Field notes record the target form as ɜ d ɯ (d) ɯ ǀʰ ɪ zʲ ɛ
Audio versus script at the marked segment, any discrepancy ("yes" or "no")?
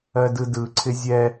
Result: no